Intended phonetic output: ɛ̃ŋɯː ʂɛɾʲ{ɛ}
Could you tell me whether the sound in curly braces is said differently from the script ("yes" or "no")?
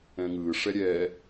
no